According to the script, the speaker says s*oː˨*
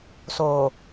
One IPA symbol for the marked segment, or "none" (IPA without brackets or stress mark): oː˨